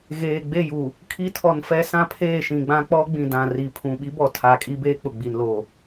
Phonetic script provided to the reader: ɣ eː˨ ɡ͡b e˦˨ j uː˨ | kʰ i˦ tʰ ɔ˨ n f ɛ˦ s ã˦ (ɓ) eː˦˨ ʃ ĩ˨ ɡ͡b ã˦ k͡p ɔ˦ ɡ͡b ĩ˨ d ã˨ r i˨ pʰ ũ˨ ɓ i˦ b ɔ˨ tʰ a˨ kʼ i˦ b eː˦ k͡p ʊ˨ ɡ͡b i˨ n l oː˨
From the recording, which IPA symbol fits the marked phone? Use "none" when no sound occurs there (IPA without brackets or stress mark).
pʰ